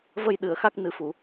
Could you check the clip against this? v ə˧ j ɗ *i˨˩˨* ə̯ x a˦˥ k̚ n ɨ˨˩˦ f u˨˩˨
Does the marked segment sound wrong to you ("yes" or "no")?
yes